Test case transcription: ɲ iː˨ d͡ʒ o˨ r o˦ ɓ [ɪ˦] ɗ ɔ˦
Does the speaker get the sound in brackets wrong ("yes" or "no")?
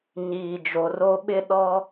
no